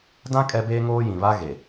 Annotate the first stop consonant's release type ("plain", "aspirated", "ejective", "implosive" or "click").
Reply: plain